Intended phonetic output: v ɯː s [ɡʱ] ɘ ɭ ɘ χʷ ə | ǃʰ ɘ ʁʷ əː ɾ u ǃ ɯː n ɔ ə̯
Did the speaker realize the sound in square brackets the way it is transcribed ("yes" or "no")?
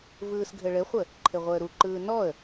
yes